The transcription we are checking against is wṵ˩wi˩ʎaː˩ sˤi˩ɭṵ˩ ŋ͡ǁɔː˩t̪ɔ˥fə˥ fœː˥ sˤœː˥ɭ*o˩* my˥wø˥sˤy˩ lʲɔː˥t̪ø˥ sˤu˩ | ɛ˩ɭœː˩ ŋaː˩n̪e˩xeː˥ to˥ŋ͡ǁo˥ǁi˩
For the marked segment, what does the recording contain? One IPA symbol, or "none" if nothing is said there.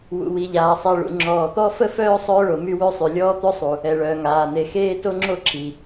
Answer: o˩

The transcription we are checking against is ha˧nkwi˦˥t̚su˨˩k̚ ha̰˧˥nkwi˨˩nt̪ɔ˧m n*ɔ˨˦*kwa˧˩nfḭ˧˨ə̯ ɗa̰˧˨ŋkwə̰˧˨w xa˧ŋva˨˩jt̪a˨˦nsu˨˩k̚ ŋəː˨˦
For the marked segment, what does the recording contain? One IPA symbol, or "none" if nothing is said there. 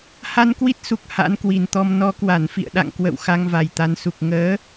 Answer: ɔ˨˦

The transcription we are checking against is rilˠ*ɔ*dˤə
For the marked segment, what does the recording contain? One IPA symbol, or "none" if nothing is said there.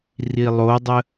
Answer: o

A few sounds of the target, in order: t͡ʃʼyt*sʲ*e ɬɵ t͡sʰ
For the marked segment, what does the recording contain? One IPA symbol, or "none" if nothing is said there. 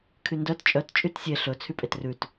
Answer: sʲ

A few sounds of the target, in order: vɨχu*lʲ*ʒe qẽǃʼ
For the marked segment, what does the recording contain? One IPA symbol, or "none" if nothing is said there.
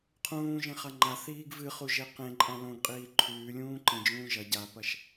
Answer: none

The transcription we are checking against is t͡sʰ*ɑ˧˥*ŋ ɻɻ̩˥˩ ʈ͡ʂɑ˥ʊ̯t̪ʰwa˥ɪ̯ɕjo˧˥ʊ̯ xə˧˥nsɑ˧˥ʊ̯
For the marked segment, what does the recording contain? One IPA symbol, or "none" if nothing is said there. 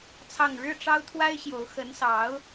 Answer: ɑ˥˧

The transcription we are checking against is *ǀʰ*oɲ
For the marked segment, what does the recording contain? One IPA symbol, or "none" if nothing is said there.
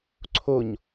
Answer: ǀʰ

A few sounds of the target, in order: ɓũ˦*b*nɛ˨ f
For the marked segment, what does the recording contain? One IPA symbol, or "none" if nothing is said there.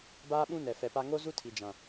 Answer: none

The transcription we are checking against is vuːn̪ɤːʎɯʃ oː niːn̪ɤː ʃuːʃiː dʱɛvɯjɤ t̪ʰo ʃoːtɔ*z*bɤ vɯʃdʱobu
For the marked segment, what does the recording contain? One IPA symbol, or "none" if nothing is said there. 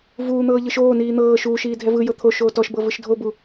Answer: ʃ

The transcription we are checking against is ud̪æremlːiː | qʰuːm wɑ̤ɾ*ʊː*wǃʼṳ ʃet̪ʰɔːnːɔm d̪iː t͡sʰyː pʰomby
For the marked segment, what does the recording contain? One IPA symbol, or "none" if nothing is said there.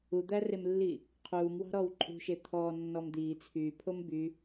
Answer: ɔː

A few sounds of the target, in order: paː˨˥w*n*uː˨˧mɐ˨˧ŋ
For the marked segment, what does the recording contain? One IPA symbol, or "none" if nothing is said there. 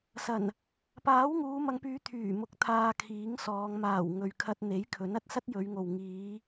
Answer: ŋ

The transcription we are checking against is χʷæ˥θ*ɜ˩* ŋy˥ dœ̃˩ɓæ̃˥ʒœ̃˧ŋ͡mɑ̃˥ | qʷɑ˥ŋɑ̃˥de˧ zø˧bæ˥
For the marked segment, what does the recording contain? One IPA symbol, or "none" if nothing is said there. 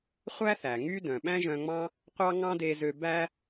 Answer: æ˩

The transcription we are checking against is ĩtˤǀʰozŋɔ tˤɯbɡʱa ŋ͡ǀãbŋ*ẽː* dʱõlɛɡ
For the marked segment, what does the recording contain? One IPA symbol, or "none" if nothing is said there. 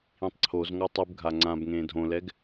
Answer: ẽː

